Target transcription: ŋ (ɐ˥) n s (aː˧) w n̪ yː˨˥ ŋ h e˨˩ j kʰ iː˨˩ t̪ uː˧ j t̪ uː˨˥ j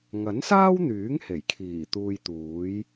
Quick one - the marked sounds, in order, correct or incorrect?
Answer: incorrect: ɐ˨˥, incorrect: aː˥

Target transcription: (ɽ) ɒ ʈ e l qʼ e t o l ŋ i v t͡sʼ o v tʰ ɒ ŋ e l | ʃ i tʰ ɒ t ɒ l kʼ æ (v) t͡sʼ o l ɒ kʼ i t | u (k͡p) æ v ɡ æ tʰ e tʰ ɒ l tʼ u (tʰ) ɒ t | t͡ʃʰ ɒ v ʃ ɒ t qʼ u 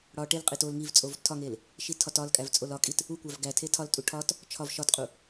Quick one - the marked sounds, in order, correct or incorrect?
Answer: correct, correct, incorrect: kʷ, incorrect: ʈʰ

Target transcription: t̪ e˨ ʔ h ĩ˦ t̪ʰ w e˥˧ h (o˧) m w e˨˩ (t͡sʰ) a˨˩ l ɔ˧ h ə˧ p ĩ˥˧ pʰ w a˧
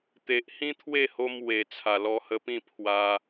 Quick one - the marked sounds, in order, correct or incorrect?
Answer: correct, correct

